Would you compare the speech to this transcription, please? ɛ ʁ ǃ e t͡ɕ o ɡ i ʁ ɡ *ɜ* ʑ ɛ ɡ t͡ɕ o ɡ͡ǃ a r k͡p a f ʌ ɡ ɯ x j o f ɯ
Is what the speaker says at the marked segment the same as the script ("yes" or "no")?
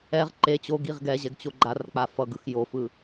no